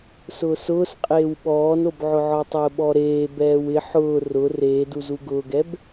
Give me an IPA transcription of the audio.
s ʊː s ʊː s qʼ eː w ɓ ɔː n o b ʕ ʊ ʕ ɔ tˤ ʊː ɓ ɔ ɾ eː b ɛː w ɪ ħ ʊː r ʊ r eː d u z u ɡ ʊː ɡ ɛ b

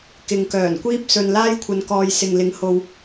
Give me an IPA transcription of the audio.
k ɪ˨ ŋ k œː˨˩ n kʷ iː˥ p̚ s ɵ˧ n l aː˥ j kʷʰ ɐ˨˧ n k ɔː˨ j s ɪ˨ ŋ l ɪ˨˥ ŋ h o˨ w

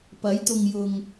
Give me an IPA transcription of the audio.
p ɐ˨˥ j t̪ ʊ˨ ŋ j ʊ˨ ŋ

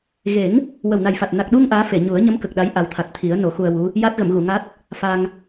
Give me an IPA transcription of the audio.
ɣ e˨˩˦ ŋ | w ə˨˩ w n a˨˩ j f a˨˩ t̚ n a˨˩ k̚ ɗ u˧ ŋ ʔ aː˧˥ f e˨˩˨ ɲ u˨˩˦ ə̯ ɲ ə˧˥ m k ə˨˩ k̚ ɗ a˧˥ j ʔ a˨˩ w t̪ʰ a˨˩ t̚ t̪ʰ i˨˩˦ ə̯ n o˨˩˦ x u˧ ə̯ w u˧˥ | j a˦˥ t̚ ɣ ə˨˩˨ m ɣ u˨˩˨ ŋ a˦˥ t̚ | f a˧ ŋ

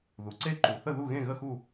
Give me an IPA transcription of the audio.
ð u˩ ǀ e˥˨ ǃ u˩ θ ə˥˨ ð u˥˨ ɣ ẽ˥˨ ɣ ə˥˨ x u˥˨

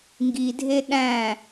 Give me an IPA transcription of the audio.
ŋ ɡ i dʱ e ɗ æ̃

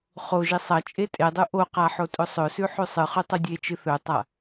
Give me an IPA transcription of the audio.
χ o ʒ i sˤ ɐ t͡ʃʼ e tʼ e dˤ u ʔ o q a ħ o tʼ ɵ sˤ ɵ s ʉ ħ ʉ sˤ ɨ χ ʉ tˤ u dʲ e t͡ʃ ɨ θ ɵ tˤ a

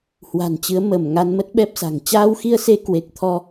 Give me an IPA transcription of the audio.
h w a̤˨˩ n t͡ɕ ɨ˨˦ ə̯ m ə˧˩ m ŋ a˧ n m ə˦˥ t̚ ɓ ɛ˦˥ p̚ s a̤˨˩ ŋ t͡ɕ aː˧ w x i˧ ə̯ s e˧ k w e˨˩ k̚ t̪ʰ ɔ˧

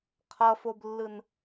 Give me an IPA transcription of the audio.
qʰ ʌ f o b lː ɯ n

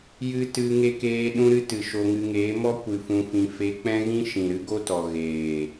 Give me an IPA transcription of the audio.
j ɨ˦ t ɨ˧ ŋ e˧ k eː˧ ɗ ũ˦ ɾ ɨ˦ t ɨ˨ ʃ o˧ ŋ ɨ˧ ŋ eː˨˦ m ɔ˦ kʷ ɨ˧ f ũ˧ f ĩ˧ f e˧ k͡p ɛ̃˦ ɣ ĩ˦ ʃ ĩ˨ ɾ ɨ˦ ɡ o˦ t ɔ˨ ɣ eː˨

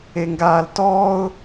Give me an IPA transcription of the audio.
e ŋ ɡ aː l t ɔː ʊ̯

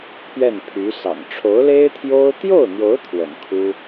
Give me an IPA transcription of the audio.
pʰ ɥ ɛ˥˩ n pʰ y˧˥ s ɑ̰˨˩ ŋ ʈ͡ʂʰ o˧˥ ʊ̯ l e˥ ɪ̯ t̪ʰ j o˥ ʊ̯ t̪ j o˥˩ ʊ̯ n̪ j o˧˥ ʊ̯ t̪ʰ w ə̰˨˩ n kʰ u˥

